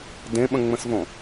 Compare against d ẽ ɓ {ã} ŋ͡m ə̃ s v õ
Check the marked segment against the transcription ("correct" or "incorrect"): incorrect